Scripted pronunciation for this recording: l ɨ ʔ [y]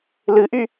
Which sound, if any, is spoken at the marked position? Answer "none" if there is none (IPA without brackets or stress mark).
y